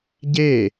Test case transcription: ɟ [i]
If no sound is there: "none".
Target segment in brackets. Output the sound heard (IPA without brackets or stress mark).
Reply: e